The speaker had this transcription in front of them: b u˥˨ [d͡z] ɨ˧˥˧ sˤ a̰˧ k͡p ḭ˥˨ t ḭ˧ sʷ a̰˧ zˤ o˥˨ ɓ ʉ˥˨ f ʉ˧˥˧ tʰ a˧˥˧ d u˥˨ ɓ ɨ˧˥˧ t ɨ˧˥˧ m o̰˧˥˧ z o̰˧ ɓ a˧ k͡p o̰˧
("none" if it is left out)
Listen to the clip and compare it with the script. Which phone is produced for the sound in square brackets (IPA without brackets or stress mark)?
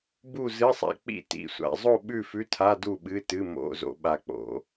z